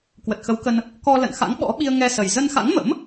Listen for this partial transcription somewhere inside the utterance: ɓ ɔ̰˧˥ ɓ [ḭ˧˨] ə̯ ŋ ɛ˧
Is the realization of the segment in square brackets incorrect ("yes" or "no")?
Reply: yes